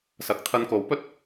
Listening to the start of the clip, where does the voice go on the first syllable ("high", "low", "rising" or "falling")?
rising